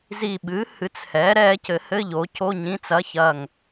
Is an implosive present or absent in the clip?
present